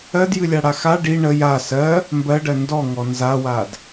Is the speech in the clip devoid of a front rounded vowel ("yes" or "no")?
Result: yes